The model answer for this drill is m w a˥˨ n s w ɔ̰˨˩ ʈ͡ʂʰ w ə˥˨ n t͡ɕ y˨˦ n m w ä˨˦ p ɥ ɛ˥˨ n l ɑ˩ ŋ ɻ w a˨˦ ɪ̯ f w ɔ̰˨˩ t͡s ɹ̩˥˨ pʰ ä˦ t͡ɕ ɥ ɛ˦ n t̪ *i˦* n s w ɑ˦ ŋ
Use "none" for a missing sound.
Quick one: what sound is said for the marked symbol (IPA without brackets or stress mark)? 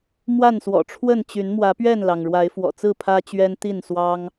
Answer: i˥˨